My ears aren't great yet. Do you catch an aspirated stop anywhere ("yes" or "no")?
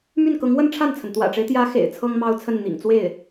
yes